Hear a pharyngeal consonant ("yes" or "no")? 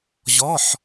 yes